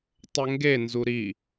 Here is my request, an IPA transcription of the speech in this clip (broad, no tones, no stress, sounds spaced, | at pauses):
tˤ ə ŋ ɡ e n z u ɾ i